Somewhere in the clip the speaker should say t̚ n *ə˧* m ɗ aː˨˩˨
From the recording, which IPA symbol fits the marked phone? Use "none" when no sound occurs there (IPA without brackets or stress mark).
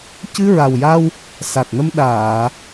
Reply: ə˧